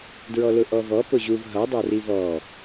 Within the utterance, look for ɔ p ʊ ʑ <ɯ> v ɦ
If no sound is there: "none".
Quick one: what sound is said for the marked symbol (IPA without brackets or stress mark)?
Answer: u